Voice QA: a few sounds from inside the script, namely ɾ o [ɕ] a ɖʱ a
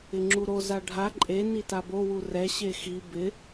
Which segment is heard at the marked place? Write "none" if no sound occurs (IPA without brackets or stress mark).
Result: z